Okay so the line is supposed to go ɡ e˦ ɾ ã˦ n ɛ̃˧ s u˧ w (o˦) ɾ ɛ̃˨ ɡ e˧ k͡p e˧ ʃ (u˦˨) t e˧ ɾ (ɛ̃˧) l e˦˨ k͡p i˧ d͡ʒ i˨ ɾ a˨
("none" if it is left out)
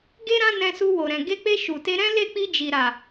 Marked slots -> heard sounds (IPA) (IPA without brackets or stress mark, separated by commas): o˨, u˨, ɛ̃˦